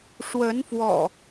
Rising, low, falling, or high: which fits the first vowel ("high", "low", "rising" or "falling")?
rising